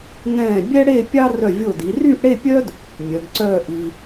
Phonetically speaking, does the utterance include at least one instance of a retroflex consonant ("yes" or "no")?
yes